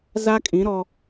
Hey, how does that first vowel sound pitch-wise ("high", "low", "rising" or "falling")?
high